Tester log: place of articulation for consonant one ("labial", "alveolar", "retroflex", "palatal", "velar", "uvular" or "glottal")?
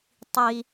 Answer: alveolar